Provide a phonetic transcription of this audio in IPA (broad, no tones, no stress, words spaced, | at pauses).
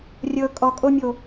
rʲɤ kʼɔkʼomʲo